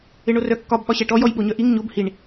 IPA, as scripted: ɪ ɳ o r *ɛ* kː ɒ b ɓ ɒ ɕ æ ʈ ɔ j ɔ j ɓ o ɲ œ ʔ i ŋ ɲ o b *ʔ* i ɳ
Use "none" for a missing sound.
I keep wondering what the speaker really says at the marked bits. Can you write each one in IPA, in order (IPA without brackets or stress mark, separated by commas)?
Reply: œ, h